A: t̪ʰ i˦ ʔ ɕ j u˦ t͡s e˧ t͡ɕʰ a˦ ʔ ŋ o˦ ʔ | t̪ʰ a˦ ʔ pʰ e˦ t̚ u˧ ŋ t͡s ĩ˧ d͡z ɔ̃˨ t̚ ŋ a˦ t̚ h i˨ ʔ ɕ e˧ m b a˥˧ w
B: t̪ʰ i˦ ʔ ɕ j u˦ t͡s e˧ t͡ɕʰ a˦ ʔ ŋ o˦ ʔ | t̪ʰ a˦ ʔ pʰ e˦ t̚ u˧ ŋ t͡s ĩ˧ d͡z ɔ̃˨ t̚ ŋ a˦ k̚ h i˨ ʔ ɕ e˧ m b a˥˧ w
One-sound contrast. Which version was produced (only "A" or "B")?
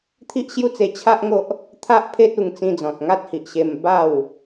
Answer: A